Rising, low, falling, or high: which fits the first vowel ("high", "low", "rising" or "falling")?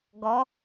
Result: rising